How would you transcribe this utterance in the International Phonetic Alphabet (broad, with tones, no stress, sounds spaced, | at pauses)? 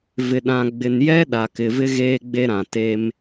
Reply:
v ɪ˨ ɗ ã˨ ɡ͡b ɪ˨ n j ɛ˦ ɗ a˨ k ɪ˨ v ɪ˦ ɣ eː˦ ɡ͡b e˦ ɾ ã˨ t e˦ m